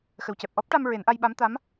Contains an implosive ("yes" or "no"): yes